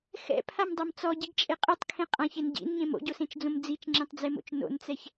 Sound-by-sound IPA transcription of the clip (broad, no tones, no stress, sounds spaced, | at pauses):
x ɛ̰ pʰ a m dˤ a m t͡s ɔ ɟ i ɡ t͡ʃʼ e qʼ ɯ tˤ kʰ ẽ qʼ ã ç e n ɟ ḭ n ɲ ẽ m o̰ ɟ o s ẽ t͡ʃ d͡z õ m d͡z i t͡ʃ ŋ͡ǁ ẽ tˤ d͡z e m o̰ t͡ʃ n o̰ n t͡s ɛ ç